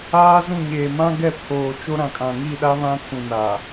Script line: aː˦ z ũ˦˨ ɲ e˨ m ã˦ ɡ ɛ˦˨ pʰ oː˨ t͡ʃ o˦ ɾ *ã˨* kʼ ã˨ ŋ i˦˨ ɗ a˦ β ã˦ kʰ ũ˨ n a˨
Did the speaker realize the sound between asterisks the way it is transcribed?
yes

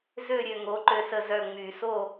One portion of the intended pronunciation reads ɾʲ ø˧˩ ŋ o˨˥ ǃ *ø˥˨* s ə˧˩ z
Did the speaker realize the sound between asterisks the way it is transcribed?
no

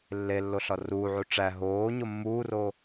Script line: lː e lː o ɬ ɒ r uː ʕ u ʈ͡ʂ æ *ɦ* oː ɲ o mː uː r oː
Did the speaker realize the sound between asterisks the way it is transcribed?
yes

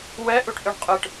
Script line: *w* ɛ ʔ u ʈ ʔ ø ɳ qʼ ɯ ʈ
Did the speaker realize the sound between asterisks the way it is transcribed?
yes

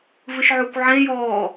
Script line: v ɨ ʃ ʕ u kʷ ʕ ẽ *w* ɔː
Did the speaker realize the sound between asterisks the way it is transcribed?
no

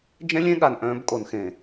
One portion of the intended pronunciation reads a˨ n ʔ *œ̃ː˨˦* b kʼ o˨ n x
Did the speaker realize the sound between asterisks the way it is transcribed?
yes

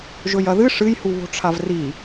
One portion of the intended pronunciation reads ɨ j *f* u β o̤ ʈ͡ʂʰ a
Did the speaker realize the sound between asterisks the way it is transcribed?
no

